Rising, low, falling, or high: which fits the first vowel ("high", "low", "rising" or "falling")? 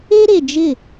high